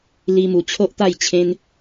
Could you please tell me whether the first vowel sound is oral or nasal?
oral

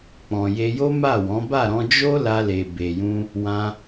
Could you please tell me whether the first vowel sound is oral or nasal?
nasal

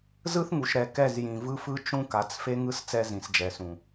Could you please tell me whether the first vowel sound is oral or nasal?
oral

